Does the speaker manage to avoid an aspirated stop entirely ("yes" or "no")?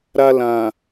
yes